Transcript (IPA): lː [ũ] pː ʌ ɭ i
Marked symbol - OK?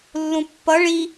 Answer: yes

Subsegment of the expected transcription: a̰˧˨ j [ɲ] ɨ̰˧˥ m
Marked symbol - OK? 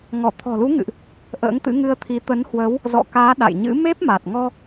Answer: yes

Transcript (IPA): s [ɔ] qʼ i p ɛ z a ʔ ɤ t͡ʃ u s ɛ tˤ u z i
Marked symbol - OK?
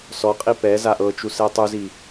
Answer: yes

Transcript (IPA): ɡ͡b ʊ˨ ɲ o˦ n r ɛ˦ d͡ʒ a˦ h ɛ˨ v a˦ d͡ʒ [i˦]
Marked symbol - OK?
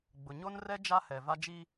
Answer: yes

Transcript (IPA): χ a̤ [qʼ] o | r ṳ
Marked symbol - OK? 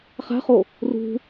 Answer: no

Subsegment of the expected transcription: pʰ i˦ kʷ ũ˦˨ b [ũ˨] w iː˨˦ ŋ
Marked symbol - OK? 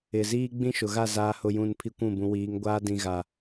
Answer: yes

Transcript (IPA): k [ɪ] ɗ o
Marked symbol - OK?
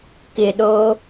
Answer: yes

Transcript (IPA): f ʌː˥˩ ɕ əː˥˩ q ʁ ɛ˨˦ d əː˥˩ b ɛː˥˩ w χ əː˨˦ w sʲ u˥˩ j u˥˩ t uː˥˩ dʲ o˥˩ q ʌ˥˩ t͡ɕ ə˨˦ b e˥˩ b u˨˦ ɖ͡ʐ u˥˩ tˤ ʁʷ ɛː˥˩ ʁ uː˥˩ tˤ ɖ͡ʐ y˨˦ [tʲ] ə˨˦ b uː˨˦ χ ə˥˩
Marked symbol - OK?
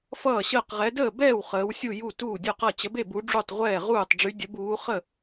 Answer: no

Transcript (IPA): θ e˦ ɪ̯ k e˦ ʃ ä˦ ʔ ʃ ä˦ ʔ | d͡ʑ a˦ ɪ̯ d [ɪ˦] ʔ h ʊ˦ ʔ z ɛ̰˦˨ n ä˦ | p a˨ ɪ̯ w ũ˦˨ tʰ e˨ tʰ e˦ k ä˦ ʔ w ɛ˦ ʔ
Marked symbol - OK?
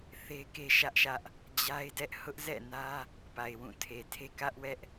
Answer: no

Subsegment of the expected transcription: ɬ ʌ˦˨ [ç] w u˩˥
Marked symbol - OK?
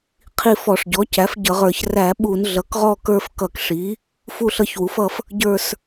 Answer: yes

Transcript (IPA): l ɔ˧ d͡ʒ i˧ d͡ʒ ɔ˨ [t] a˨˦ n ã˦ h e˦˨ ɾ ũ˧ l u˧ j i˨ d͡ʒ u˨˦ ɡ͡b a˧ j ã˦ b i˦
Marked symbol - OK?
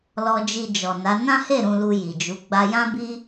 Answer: no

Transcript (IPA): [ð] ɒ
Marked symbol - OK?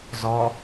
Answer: no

